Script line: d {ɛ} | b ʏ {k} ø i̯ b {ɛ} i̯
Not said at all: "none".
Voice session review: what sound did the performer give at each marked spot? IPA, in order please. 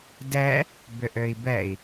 ɛ, ʔ, ɛ

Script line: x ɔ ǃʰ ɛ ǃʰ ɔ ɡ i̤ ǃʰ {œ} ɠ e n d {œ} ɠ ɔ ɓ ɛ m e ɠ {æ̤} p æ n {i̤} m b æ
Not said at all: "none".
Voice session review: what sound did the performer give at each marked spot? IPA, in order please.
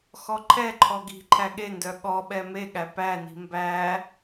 æ, œ, æ, i̤

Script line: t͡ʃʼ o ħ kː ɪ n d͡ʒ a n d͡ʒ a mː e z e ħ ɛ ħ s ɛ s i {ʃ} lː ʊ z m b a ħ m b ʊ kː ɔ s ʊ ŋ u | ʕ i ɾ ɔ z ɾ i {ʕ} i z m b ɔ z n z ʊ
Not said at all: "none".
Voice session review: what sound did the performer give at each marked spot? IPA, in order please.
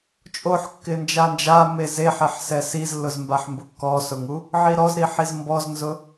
z, ħ

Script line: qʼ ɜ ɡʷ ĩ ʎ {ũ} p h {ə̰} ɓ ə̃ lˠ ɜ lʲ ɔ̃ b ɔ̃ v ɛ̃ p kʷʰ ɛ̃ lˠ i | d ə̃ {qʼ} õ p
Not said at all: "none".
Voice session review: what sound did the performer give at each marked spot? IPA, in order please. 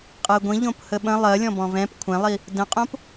õ, ə, qʼ

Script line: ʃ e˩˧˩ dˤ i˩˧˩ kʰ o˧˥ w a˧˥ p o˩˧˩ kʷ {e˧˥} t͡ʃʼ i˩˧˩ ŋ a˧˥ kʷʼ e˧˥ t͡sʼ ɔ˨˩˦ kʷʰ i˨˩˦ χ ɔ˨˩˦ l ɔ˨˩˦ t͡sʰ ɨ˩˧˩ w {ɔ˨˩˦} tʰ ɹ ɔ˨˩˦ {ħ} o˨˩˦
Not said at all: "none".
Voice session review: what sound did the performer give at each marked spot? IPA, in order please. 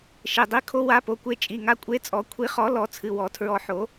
e˧˥, ɔ˨˩˦, ħ

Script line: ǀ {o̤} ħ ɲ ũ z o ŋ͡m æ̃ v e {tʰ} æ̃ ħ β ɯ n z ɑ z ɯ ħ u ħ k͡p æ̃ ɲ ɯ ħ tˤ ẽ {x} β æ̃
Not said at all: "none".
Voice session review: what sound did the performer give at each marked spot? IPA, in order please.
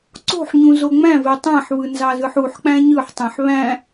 o̤, tˤ, ħ

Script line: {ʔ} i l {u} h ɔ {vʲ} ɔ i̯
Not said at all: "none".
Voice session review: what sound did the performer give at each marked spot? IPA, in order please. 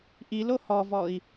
ʔ, o, v

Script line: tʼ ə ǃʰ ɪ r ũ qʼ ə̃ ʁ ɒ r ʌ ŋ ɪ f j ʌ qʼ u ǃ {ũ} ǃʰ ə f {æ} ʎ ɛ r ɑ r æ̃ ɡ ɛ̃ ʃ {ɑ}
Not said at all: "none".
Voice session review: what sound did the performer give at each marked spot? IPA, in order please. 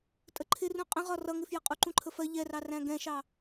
ũ, ɜ, ɑ

